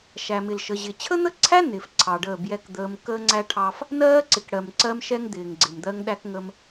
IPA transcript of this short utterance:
ʃ æ˨ m ɪ˨ l ʃ ə˨ ʑ ɪ˨ t͡ɕʰ ə˦ n̪ ə˦ ǀʰ æ˦ n ɪː˨ f ǀʰ ɑ˨ ɖ əː˦˨ b j ɛ˦ k d̪ əː˦ m k əː˦ ŋ͡ǀ æ˦ ʈʰ ɑ˦ f | n ɜː˦ ǀ ɪ˨ k ɽ ɜ˨ m ǀ ɜ˦ m ʃ ɛ˦ ŋ d̪ ɪː˨ ŋ ɡ͡ǀ ɪ˨ m d̪ ɜ˦ ŋ ɗ æ˦ k ŋ ə˦ m

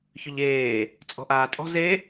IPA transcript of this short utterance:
ç ʏ ʎ eː | t͡sʼ ɔ̤ ʔ aː tʼ ɔ̤ z e

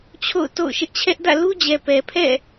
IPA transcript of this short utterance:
t͡ɕʰ o̰˦˨ ʊ̯ t o̰˦˨ ʊ̯ ʃ ɪ˦ ʔ t͡ɕʰ ɛ˦ ʔ d ä̰˦˨ l u˦ d͡ʑ ɛ˨ p ɛ˨ pʰ ɛ̰˦˨

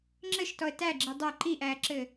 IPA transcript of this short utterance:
ŋ͡ǁ ɘ ʃ t ɔ ə̯ t æ ɡ͡ǁ i dˤ ɜ ǃ i ʔ æː ǁ ɘ

